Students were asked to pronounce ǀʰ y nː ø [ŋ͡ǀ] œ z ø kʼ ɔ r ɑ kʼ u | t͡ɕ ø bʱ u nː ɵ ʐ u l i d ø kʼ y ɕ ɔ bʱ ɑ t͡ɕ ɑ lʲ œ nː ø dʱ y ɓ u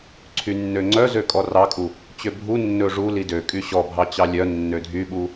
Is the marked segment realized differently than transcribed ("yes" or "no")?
no